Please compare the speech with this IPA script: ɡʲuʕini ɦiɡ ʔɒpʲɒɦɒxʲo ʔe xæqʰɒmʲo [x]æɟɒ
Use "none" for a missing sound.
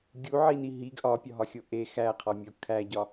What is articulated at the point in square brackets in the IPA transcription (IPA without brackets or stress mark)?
kʰ